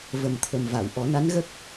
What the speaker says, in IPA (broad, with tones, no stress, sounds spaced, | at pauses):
v ə˨˩ m t̪ʰ ə˨˩ m v a˨˩˨ w ʔ ɔ˨˩˦ n a˧˥ n ɣ ə˦˥ k̚